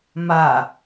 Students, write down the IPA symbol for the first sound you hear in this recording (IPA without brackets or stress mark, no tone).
m